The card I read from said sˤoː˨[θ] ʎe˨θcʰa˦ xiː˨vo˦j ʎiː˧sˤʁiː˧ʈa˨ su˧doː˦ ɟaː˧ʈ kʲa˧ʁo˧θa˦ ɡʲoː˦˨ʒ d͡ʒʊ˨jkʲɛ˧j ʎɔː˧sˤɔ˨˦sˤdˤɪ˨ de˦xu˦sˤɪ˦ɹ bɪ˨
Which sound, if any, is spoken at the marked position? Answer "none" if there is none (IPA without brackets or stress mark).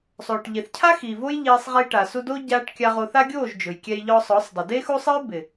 ʈ